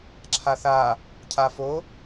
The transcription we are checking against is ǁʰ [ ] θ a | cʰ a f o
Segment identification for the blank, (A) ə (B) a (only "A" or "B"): B